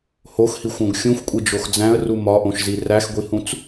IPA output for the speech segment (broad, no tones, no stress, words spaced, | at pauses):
hoxhixʷõɡ xʲũxʷkʷʼid͡ʒox d͡zæ̃ə̯ru mɒʔõʃzi ræxɡʷihũt͡s